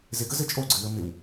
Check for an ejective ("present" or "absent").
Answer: present